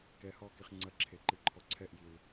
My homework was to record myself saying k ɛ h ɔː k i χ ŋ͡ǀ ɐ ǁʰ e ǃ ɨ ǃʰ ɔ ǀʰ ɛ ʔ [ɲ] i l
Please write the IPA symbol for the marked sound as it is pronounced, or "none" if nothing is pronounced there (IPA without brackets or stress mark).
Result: j